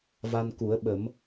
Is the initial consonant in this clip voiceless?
no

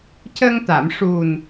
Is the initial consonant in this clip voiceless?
yes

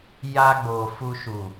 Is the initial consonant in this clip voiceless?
no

